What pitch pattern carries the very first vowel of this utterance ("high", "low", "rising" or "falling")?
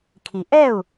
low